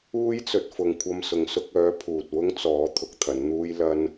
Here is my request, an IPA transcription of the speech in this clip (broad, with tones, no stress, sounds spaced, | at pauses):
uː˥ j t͡s ɵ˨ t̚ f ʊ˨ ŋ kʷʰ ɐ˧ m s ʊ˨ ŋ s ʊ˧ k̚ œː˨˥ pʰ uː˨ t̚ w ʊ˥ ŋ t͡s ɔː˨˥ t̪ʰ ʊ˨˥ k̚ t̪ʰ ɐ˨˥ n n̪ uː˥ j l ɐ˥ n